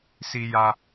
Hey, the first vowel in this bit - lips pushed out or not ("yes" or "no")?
no